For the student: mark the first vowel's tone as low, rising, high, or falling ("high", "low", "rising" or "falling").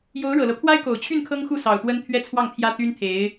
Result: rising